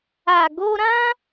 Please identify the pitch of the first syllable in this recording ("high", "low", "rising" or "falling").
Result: low